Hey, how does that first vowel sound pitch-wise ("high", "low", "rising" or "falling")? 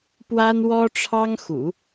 high